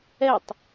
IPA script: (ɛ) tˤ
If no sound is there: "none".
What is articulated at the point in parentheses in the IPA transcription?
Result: ɛ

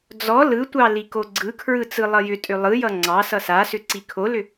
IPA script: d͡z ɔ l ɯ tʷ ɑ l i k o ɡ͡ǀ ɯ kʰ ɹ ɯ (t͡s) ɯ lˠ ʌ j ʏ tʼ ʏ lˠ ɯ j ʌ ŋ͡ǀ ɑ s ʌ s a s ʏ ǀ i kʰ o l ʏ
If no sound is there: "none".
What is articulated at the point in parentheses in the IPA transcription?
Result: t͡s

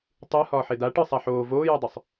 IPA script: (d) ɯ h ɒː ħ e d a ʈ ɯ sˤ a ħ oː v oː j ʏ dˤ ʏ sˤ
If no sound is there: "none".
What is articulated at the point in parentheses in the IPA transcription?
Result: tˤ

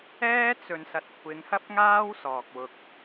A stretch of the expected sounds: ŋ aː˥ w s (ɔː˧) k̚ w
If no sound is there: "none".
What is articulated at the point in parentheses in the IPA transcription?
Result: ɔː˨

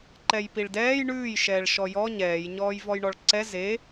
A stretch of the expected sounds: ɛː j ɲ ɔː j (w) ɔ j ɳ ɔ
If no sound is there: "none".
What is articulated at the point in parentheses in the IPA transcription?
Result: v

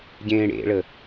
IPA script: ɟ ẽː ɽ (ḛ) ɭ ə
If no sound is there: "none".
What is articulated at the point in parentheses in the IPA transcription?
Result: ḛ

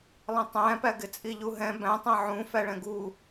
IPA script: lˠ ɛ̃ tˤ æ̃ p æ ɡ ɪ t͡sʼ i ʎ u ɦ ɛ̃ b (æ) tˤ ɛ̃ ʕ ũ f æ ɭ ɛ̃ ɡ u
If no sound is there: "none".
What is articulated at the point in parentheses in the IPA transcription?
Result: æ̃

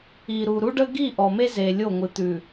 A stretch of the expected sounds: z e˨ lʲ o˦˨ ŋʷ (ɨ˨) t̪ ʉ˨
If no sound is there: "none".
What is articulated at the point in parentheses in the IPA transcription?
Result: ɨ˨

